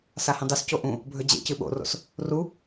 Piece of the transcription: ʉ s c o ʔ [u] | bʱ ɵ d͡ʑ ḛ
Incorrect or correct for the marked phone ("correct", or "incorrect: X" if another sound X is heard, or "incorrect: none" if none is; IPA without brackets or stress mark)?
incorrect: ũ